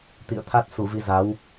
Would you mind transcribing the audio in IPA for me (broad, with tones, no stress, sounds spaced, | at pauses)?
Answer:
t̪ ḭ˧˨ ə̯ t̪ʰ a˦˥ t̚ s u˧˩ v i˧ z a˨˦ w